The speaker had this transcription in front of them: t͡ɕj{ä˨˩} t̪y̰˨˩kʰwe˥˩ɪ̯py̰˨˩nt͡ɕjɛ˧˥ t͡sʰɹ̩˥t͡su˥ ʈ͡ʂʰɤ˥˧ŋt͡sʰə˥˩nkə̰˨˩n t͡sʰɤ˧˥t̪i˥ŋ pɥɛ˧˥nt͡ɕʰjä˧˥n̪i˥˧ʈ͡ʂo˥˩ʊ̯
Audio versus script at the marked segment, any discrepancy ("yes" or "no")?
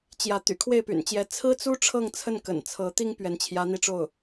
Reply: yes